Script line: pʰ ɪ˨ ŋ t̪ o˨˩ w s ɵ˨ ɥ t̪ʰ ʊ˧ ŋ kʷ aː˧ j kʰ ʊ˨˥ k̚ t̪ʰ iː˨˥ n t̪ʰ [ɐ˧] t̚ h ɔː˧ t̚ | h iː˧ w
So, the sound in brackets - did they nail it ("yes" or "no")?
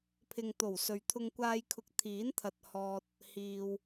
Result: yes